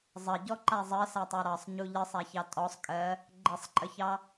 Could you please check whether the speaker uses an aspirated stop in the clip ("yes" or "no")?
no